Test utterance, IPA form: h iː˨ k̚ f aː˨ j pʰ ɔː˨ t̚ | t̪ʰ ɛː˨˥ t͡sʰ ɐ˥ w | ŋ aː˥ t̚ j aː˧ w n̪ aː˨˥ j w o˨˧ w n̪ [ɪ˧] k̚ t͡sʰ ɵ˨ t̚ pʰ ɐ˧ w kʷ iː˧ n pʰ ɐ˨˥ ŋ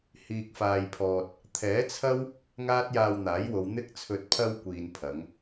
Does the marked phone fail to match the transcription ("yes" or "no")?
no